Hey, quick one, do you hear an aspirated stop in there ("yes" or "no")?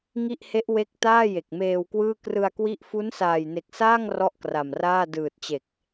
no